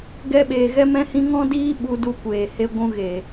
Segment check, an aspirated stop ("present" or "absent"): absent